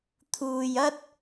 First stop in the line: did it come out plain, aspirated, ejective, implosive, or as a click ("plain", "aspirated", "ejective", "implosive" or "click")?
aspirated